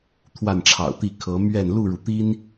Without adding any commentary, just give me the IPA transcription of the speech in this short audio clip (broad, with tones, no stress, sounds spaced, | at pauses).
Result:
t̪ʰ w a˥˨ n ʈ͡ʂʰ ɑ̰˨˩ ʊ̯ t̪ i˥˨ kʰ ɤ˨˦ m ɥ ɛ˥˨ n l u˥˨ ɻ u˩ t̪ i˦ n